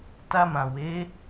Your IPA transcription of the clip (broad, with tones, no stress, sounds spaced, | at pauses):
t a˧ m ã˨ w e˨˦